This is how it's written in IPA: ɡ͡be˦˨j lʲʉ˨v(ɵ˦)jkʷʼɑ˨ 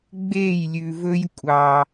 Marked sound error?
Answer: no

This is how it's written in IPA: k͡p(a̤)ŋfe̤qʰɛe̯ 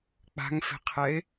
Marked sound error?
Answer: no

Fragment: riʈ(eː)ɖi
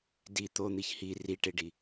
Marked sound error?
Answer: yes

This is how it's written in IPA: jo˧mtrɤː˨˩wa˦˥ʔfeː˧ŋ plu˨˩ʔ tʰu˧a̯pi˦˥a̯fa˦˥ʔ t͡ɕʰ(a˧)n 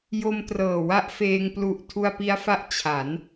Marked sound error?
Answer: yes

